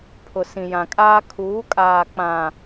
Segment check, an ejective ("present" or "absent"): present